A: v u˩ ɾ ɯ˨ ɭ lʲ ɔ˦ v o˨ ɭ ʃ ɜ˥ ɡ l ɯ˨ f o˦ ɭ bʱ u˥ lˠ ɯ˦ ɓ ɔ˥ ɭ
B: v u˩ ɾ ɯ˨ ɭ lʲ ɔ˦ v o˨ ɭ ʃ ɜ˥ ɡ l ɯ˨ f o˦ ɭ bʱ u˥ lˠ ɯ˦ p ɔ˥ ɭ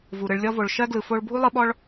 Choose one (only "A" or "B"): A